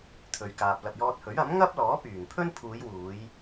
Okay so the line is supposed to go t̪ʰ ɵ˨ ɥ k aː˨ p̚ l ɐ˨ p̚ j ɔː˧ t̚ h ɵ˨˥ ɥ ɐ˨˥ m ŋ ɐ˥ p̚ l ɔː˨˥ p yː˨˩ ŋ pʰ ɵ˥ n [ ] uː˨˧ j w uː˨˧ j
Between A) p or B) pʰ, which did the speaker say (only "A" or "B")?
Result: B